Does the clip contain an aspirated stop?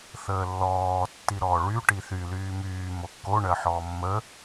no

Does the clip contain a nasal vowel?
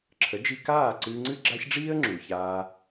no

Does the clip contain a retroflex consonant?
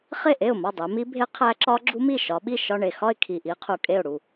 yes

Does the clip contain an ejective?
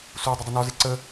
no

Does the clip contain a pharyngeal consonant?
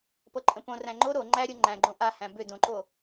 no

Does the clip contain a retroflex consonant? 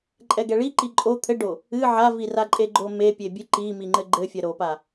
yes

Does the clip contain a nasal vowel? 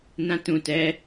yes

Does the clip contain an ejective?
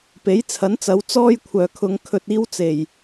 no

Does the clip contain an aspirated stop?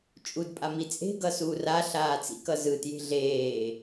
no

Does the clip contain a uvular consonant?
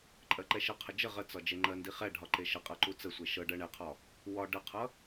yes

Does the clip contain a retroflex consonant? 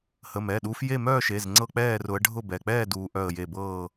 yes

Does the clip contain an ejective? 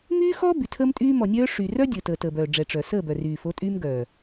yes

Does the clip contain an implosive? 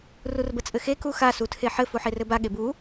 yes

